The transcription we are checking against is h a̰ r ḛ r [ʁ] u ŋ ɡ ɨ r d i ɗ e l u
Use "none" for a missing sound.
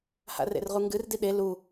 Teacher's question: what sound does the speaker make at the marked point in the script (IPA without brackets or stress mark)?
ʁ